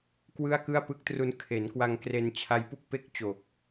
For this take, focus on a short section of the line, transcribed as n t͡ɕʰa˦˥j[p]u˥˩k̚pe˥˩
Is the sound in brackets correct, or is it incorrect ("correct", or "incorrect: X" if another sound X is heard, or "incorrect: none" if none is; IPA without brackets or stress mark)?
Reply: correct